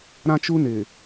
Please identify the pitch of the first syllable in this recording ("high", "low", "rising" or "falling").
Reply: high